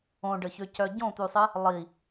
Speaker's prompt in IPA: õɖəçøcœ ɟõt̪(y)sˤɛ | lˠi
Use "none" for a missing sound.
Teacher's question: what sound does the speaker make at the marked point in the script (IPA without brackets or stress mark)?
y